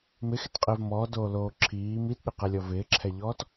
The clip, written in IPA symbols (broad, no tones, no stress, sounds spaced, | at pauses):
m ɪ x ɪ t qʼ ɪː v m ɔː d oː l oː ǁʰ iː m i t ɗ ɪ q ɛ lʲ ɔ v ɪː ǁʰ ɛ ʎ ɔː t